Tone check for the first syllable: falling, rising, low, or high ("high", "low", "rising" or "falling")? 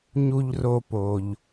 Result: low